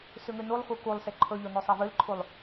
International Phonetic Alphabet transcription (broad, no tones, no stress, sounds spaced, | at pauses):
s ʉ ŋ ʉ n u lˠ x u k u lˠ s e ǃʰ ɵ ʎ o n ʉ sˤ e v ɨ l ǃʰ u lˠ